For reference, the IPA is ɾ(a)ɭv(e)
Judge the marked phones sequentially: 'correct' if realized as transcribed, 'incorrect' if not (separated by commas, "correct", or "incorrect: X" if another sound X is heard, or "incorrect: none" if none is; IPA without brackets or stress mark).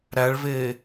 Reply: incorrect: æ, incorrect: eː